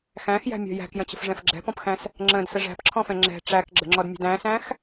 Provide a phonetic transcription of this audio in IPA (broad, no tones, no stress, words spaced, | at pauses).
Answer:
xæ̃xjæ̤mʲɔ̤ jæ̤kjə̃t͡ɕə̤fʐɛ̃f ɡ͡ǁɛ̤pɔ̃pxæ̃s | ŋ͡ǁə̃dsə ʐæ̤pǁʰɔ̃fɛ̃ ŋ͡ǁɛ̤ ʈ͡ʂækɡ͡ǁə̤ŋ͡ǁɔdmʲə̤d æ̃sæ̃x